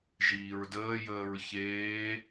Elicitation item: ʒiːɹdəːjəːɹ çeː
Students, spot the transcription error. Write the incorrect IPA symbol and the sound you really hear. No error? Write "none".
none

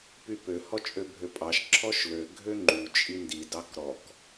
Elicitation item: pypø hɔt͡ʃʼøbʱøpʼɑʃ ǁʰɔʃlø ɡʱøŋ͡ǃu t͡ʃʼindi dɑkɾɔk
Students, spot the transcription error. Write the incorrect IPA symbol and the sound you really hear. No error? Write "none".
u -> y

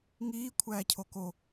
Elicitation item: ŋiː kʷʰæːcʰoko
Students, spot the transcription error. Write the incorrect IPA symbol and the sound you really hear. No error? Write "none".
none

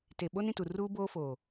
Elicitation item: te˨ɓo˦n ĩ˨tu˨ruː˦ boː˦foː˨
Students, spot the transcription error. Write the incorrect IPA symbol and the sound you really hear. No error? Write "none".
none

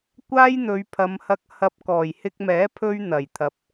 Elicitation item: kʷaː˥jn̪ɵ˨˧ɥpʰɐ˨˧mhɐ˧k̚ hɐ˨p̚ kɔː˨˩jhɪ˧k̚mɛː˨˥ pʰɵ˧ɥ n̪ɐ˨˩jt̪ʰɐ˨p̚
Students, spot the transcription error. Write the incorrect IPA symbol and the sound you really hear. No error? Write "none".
none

